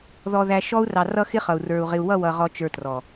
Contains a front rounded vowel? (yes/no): no